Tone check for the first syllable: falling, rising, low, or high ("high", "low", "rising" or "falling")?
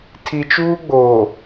low